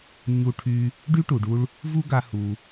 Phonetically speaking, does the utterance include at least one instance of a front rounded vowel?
yes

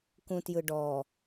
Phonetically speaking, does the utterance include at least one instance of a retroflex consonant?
yes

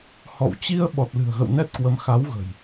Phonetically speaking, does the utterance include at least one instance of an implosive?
yes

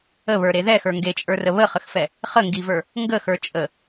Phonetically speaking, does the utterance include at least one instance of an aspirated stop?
no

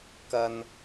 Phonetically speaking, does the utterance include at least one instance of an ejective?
no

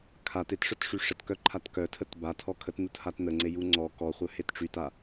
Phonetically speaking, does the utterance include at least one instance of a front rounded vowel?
yes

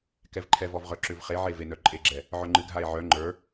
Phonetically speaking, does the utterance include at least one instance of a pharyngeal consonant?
yes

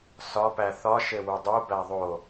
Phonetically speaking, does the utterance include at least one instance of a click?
no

